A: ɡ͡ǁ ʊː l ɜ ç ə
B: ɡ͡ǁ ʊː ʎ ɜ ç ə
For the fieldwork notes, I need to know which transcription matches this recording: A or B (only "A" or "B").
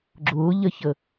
B